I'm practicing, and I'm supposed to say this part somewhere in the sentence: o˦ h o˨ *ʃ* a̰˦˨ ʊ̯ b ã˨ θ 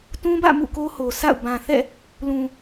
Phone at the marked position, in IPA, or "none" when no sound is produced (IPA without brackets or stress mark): s